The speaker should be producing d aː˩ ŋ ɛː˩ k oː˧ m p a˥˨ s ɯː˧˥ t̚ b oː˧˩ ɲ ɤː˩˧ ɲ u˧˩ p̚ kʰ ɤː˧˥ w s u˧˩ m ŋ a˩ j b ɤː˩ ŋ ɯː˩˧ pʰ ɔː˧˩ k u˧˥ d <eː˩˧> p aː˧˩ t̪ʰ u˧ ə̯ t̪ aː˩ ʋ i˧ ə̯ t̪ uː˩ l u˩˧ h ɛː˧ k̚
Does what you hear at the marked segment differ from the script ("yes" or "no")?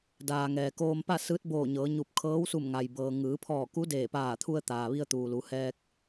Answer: yes